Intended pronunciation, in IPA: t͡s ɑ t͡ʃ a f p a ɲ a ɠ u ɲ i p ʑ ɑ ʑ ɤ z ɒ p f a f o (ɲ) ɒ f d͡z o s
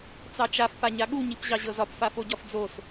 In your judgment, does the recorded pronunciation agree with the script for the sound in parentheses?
no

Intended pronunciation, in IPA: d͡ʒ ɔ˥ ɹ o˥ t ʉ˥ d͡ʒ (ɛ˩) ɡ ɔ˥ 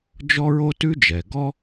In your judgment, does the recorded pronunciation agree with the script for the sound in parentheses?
yes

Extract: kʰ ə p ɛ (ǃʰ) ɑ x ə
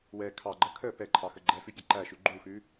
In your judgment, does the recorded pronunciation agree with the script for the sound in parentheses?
yes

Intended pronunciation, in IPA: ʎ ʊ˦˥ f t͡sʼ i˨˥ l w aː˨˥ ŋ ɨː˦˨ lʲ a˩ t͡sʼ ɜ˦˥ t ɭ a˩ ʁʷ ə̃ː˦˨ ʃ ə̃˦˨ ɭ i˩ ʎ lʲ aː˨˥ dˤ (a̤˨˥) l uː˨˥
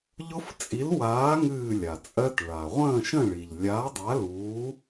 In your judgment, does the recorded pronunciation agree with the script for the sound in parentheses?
no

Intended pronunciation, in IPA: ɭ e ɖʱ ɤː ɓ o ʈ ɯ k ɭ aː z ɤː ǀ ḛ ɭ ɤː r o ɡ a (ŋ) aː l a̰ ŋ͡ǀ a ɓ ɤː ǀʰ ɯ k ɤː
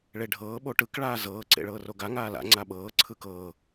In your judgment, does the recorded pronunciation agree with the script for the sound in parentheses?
yes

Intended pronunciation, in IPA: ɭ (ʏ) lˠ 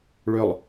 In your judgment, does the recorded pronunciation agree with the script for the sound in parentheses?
yes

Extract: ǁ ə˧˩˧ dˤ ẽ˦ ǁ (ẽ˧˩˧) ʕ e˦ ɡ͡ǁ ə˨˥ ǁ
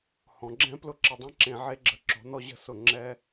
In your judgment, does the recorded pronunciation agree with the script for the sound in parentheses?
yes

